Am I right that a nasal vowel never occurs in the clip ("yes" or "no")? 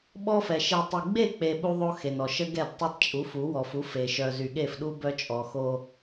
yes